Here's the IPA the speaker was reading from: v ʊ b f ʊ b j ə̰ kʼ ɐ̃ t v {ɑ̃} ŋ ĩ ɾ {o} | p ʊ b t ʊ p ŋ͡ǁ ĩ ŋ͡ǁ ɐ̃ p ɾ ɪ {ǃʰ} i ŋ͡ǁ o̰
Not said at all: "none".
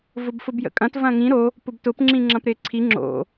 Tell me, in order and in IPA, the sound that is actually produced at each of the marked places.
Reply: ɐ̃, o, ǀʰ

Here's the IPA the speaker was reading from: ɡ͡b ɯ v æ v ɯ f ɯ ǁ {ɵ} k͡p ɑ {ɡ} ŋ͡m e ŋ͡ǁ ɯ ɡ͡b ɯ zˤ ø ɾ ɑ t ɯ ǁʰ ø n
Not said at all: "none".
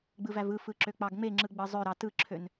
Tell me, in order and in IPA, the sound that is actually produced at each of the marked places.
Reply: ø, ɡ

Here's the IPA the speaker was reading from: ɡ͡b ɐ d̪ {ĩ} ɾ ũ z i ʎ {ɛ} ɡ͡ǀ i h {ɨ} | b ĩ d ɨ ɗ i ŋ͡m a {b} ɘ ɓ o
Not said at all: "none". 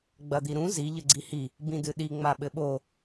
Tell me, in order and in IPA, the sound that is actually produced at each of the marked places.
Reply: i, ɘ, i, ɓ

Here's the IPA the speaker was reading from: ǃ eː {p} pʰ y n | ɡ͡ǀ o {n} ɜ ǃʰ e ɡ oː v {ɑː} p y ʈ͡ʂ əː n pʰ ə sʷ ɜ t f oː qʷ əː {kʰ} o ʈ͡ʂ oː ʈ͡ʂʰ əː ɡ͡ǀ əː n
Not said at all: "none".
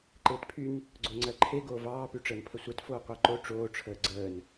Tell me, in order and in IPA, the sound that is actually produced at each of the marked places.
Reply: t, ŋ͡ǀ, ɑː, ǃ

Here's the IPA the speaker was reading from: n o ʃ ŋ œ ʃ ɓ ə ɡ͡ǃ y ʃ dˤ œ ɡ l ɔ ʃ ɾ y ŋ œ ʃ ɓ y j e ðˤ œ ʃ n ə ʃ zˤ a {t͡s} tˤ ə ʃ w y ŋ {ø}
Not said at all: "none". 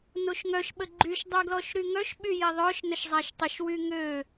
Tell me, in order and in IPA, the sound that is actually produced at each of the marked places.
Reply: ʃ, ø

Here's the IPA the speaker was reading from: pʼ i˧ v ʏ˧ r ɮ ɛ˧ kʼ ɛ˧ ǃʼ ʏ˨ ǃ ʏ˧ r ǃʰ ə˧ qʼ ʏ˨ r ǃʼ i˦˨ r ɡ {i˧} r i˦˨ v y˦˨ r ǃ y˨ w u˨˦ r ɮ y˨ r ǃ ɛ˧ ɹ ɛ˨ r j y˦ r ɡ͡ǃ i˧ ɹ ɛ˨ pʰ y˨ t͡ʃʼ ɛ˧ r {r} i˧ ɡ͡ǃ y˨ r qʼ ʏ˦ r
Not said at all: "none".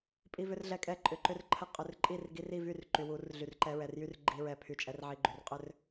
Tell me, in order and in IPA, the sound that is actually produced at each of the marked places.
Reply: i˧, ʕ

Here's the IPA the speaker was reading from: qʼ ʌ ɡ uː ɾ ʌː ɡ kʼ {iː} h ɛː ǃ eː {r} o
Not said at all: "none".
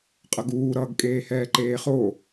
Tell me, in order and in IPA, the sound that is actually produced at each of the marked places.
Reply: eː, χ

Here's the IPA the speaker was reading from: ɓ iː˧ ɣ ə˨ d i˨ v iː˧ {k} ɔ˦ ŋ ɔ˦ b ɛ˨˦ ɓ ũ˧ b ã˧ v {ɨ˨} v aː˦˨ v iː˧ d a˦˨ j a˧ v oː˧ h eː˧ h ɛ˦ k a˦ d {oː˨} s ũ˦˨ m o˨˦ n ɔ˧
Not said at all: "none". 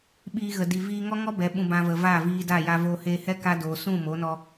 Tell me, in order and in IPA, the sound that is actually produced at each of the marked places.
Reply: ŋ, ə˨, oː˨

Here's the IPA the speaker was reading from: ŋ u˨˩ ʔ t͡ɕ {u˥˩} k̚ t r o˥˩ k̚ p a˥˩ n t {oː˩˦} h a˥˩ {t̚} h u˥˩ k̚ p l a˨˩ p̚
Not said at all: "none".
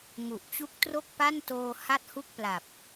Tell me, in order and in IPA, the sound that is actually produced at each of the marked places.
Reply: u˦˥, oː˧, t̚

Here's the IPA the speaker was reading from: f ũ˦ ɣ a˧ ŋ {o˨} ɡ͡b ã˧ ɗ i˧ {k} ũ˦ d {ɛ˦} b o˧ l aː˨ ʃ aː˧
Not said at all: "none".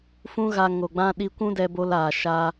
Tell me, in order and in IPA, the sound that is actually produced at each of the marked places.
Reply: o˨, kʷ, ɛ˧

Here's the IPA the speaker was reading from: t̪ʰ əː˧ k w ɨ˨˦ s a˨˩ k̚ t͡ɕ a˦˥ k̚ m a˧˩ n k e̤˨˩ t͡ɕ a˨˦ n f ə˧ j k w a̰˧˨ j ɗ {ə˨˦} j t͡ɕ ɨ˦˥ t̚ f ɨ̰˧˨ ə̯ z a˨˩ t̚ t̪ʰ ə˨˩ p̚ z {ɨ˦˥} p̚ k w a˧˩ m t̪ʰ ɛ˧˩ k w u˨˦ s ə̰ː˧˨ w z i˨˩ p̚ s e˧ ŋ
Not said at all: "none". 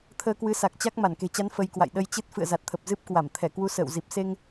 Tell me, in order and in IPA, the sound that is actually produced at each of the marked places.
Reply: ə˧, ɨ˦˥

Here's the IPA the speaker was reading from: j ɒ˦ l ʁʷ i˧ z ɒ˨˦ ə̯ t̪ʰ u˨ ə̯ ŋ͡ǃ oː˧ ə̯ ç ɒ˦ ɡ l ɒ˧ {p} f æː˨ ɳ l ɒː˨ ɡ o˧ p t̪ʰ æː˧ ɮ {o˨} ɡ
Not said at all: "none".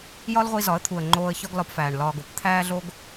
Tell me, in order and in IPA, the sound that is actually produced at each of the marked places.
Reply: p, o˧

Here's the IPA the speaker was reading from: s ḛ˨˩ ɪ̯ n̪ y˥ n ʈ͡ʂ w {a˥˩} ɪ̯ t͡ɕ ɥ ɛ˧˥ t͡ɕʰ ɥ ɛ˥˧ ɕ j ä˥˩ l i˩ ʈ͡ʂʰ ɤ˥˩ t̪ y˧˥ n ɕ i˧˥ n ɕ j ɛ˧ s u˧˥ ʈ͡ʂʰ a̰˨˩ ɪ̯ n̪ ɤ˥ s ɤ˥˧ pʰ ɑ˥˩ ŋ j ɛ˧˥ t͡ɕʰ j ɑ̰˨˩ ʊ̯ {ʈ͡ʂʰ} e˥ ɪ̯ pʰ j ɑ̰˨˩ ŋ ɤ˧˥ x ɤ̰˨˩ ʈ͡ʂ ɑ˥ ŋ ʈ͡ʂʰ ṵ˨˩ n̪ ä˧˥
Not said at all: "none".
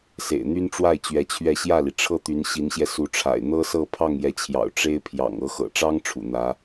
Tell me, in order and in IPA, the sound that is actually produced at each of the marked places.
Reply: a˥˩, ʈ͡ʂ

